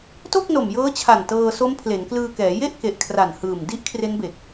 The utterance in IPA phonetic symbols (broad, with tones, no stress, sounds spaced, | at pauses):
t o˥˩ k̚ n o˨˩ m j ɤː˦˥ t͡ɕʰ a˨˩ n t ɤː˧ s o˦˥ m pʰ l e˩˦ n k l ɯː˧ k ɛː˩˦ j e˥˩ ʔ k e˨˩ ʔ kʰ r a˨˩ n h ɯː˨˩ m d i˦˥ ʔ kʰ r e˦˥ n b e˨˩ k̚